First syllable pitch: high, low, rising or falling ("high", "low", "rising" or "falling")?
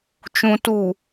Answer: low